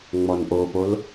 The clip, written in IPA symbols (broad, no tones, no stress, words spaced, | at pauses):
ŋ͡mɔnʔopol